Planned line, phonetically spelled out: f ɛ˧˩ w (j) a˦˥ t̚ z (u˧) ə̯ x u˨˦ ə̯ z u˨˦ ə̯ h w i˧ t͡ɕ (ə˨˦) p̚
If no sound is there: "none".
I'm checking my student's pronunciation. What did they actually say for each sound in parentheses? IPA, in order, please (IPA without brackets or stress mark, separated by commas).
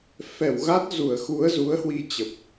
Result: ɣ, u˧˩, ə˨˩